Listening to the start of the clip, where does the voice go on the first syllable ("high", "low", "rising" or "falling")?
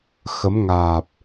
rising